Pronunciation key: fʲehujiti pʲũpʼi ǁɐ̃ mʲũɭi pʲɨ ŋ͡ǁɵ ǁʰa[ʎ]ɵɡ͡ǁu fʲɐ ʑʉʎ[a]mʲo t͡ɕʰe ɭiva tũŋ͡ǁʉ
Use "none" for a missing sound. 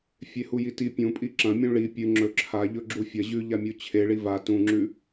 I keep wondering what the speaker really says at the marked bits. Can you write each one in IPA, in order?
ʎ, a

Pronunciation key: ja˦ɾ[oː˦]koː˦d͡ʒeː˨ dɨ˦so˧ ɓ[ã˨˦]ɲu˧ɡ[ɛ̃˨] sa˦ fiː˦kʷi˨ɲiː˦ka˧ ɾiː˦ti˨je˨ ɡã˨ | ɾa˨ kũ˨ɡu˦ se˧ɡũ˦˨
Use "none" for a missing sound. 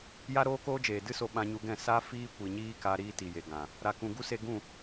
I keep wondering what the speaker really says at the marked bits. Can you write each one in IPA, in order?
oː˦, ã˧, ɛ̃˦˨

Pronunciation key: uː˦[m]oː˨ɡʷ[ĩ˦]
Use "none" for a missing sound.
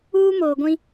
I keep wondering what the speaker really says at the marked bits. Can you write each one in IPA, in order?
m, ĩ˦

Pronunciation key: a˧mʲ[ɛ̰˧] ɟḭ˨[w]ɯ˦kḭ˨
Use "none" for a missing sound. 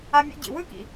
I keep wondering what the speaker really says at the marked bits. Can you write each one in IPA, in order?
ḛ˧, w

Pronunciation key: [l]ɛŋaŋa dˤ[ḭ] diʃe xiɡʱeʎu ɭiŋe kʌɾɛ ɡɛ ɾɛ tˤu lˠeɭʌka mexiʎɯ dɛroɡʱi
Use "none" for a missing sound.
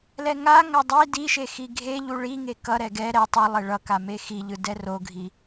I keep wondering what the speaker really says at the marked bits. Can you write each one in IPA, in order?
l, i

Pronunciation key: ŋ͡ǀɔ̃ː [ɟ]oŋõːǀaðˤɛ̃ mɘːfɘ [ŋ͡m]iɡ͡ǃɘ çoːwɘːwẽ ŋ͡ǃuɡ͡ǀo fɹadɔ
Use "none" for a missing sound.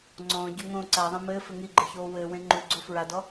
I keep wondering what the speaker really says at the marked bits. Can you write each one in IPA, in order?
ɟ, ŋ

